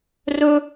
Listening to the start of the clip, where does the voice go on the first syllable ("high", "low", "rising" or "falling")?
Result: high